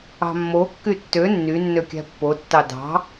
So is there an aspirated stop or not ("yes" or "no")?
no